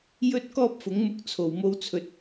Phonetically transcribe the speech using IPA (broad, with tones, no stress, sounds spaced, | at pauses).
j ɵ˥ t̚ k ɔː˥ p̚ f ʊ˨˥ ŋ m ʊ˧ k̚ t͡sʰ o˨ w m o˥ w t͡sʰ ɵ˧ t̚